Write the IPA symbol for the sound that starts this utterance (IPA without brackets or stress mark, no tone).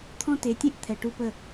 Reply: t̪ʰ